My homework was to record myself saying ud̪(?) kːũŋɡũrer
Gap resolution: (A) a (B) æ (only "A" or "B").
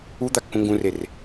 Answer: A